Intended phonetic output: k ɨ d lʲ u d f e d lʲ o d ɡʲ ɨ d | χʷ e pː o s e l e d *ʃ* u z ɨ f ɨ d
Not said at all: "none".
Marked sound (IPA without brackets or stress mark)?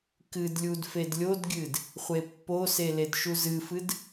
ʃ